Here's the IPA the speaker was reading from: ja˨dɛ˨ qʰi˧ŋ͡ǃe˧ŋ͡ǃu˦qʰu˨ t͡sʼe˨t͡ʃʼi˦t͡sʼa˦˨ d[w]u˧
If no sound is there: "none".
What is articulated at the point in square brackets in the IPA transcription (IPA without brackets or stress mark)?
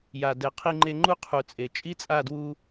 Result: w